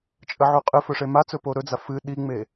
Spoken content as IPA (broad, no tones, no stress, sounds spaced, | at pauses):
t͡ʃʼ ə ʕ u qʼ ɨ f ɵ ʂ e m a t͡s ɵ p o ɾ ɵ d͡z a f ɨ ɗ i ŋ͡m e